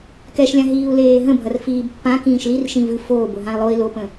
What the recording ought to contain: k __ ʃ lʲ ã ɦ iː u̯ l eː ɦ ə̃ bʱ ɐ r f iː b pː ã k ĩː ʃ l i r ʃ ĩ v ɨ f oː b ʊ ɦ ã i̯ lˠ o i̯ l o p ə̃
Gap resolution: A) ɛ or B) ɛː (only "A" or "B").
A